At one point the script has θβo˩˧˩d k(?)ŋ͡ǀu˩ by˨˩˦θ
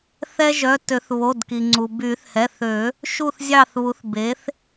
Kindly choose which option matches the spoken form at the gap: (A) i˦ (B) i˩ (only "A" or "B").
B